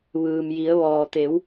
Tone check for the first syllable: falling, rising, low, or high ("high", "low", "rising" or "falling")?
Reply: low